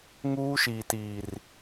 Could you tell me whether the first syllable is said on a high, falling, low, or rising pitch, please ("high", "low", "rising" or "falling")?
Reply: high